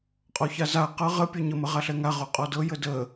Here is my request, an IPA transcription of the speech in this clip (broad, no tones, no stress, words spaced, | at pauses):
qʼɔçaza qɤ ʁə pʲɔɲə məʁaɬɛŋa ʁoqʼɔdɤ jədə